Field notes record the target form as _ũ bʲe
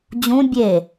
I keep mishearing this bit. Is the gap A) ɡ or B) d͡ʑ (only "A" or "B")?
B